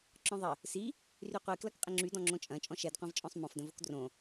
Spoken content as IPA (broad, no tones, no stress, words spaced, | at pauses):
ǁɔ̃ðˤə | si | ryqʷiklɐk qʼɪŋ͡ǁydɔ̃ ŋ͡ǁõt͡ʃʼɐ̃ t͡ʃʼɔ̃ʃɛdqʷẽvt͡ʃʼɔ̃sˤ mɔ̃fdə̃vok drõ